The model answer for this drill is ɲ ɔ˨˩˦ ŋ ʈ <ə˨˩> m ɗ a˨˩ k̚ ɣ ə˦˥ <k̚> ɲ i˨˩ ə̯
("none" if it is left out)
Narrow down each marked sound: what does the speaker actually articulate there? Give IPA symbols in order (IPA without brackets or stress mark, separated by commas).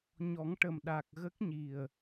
ə˨˩, k̚